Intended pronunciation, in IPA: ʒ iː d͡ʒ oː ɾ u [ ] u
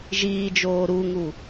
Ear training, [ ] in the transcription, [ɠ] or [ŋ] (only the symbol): ŋ